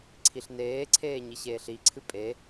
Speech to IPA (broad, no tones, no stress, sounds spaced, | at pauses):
ǀʰ i ɬ n eː ǀʰ eː ɲ i ɕ eː ɬ i ǀʰ ɨ pʼ e